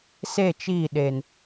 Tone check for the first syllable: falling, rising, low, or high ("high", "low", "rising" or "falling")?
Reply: falling